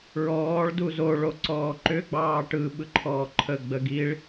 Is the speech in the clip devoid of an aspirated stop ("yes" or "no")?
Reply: no